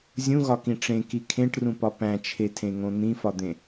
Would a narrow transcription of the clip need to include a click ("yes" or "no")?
no